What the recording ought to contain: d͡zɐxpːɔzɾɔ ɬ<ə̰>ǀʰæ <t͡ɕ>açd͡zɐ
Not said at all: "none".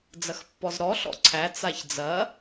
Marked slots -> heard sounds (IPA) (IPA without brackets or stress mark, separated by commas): ɔ̰, t͡s